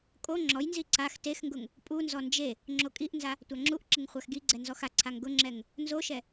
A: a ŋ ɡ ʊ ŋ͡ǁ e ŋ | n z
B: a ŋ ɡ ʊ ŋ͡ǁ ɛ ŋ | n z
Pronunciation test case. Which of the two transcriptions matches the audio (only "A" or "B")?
B